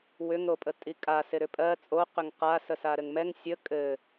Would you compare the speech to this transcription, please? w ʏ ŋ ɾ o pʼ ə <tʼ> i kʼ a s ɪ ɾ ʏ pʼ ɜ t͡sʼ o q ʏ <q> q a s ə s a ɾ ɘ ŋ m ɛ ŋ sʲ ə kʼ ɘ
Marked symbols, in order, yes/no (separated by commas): yes, no